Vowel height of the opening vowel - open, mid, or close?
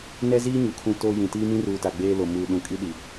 mid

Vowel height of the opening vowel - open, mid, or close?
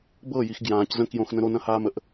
mid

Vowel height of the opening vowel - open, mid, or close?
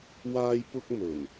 open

